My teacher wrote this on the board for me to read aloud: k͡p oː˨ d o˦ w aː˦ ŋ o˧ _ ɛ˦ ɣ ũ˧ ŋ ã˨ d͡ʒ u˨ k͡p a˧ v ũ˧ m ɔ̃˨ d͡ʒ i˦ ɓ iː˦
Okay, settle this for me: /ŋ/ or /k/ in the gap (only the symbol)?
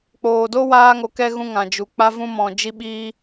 k